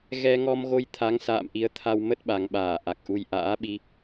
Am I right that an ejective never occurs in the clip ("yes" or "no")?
yes